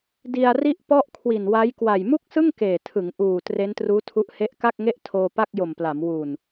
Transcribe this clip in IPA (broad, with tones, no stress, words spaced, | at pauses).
di˧a̯ri˥˩ʔpɔ˥˩ʔ kʰwi˨˩nwa˦˥jkwa˨˩j mu˥˩k̚sɯ˥˩ŋ keː˨˩tʰɯ˩˦ŋʔuː˨˩ tre˦˥ntruː˦˥tʰu˦˥ʔ he˦˥ʔka˥˩k̚ŋe˥˩ʔ tʰoː˧pa˥˩k̚jo˨˩mpla˩˦m wu˨˩n